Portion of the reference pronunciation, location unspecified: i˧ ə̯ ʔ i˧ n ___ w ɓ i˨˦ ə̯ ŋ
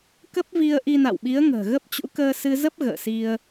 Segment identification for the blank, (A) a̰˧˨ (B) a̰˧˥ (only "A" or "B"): A